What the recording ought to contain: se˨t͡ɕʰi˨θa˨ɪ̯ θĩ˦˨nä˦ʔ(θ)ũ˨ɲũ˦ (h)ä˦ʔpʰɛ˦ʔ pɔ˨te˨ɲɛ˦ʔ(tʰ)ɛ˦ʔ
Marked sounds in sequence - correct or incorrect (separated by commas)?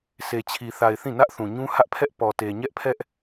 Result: correct, correct, incorrect